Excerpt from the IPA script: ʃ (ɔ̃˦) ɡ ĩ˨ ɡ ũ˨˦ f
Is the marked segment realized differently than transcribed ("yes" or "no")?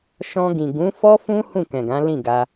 yes